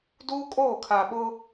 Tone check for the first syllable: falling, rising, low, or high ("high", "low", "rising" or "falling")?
high